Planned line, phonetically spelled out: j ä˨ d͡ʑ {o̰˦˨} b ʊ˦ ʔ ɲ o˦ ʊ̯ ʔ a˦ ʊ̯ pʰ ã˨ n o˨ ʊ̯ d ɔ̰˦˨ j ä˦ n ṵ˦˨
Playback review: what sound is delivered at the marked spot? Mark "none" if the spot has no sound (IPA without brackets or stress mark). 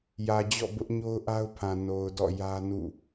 ɔ̰˦˨